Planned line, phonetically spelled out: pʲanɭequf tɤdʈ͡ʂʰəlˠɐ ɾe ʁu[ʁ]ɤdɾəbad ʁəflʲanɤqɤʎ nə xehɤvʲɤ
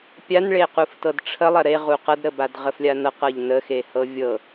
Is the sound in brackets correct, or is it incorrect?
incorrect